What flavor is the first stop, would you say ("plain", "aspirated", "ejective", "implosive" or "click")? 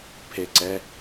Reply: aspirated